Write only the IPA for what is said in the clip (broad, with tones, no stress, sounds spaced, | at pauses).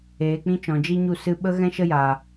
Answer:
eː˨ k͡p ĩ˦ t͡ʃ ɔ̃˨ d͡ʒ i˦ ɲ u˦˨ s ɨ˧ ɓ ə˦ ɣ ɛ̃˦ ʃ ə˦ j aː˨